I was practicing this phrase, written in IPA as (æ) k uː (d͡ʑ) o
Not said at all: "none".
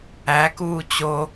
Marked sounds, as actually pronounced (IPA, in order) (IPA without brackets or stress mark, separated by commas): æ, t͡ɕ